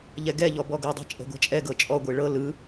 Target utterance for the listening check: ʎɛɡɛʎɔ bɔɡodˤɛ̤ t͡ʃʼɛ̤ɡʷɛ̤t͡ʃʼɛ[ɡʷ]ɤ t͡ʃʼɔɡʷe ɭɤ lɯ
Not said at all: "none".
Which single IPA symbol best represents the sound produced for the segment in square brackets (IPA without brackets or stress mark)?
ɡ